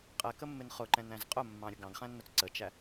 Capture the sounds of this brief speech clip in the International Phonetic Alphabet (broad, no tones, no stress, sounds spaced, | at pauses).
qʼ ɛ k ə mː ɪ n χ ʊ ǃ ɛ̃ n æ̃ z qʼ ʊ mː ɑ̃ ɾʲ ə ɡ ɑ̃ ɡ χ æ̃ nː ʊ t͡s ǀ ə t͡ʃ æ